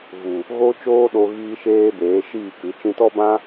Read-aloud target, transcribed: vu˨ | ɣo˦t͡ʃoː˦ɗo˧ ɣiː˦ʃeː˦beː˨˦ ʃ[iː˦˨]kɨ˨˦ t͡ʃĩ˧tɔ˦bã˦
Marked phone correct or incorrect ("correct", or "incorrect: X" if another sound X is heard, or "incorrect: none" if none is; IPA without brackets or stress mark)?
correct